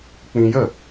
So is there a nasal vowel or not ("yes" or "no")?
yes